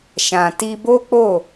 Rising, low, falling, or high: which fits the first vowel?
low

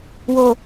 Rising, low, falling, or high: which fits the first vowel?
low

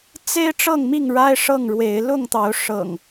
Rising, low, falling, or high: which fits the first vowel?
high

